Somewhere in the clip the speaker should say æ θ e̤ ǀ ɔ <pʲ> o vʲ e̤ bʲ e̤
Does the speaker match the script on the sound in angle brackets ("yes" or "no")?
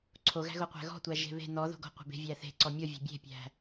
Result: no